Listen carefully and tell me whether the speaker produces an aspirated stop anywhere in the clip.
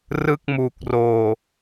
no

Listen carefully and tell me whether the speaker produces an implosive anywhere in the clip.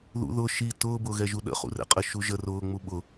yes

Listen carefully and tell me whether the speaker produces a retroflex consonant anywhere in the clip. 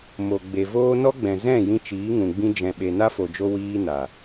no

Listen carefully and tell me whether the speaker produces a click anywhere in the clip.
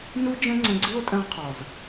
yes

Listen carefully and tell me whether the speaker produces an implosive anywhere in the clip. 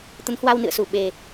yes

